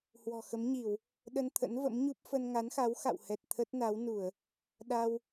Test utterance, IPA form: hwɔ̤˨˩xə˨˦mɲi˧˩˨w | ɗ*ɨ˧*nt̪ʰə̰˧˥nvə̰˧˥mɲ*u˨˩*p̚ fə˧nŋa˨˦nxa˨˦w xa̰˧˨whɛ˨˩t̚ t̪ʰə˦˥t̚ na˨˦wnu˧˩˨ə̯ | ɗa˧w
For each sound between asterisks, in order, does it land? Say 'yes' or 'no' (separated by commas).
no, no